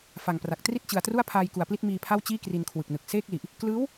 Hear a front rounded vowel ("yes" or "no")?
no